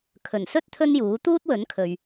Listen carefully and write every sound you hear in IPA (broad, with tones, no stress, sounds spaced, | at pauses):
kʰ ɵ˨˩ n s ɵ˥ t̚ t̪ʰ ɵ˥ n j uː˨˥ t̪ uː˥ t̚ w ɵ˨˥ n kʰ ɵ˨ ɥ